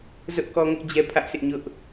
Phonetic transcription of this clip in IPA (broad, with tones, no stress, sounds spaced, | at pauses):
z ʊ˦ ʔ k ɔ˦ ŋ ʊ˦ ʔ d͡ʑ ɛ˦ pʰ ä˦ ʔ sʰ ɪ˦ ʔ ɲ ʊ˦ ʔ